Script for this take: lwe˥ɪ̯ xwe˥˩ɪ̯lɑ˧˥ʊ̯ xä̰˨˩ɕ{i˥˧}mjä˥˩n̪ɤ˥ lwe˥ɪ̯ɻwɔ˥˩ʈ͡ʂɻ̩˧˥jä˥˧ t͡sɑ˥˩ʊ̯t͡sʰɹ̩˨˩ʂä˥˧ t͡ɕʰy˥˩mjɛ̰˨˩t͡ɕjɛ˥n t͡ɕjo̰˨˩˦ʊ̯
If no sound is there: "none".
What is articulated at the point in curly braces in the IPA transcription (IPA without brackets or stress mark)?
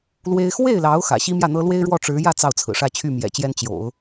i˥